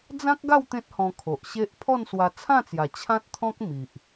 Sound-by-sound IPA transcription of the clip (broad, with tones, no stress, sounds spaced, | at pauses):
d͡z ã˦ k̚ ɡ a˥˧ w t̪ ẽ˦ t̚ h ɔ̃˧ kʰ o˨ ʔ ɕ e˦ ʔ pʰ ɔ˥˧ n s w a˧ t͡sʰ ã˥˧ t͡s j a˨˩ t͡ɕʰ ã˦ t̚ t̪ʰ ɔ̃˦ k̚ m i˨ ʔ